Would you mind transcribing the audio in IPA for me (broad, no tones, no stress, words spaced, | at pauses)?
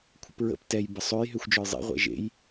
kʷʰə̰pɹə̰p tɛj bəsˤøj ɦøxʷd͡ʒɔjzˤḛ ʁʷɛ̰ʒḛj